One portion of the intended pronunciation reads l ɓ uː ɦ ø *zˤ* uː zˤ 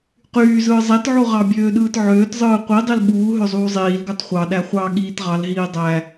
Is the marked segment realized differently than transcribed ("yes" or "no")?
no